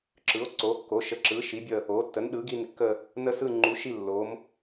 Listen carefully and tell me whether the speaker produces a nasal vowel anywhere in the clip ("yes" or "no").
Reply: no